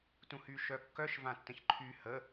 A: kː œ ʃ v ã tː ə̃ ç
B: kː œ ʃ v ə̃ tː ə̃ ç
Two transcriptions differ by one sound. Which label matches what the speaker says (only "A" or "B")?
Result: A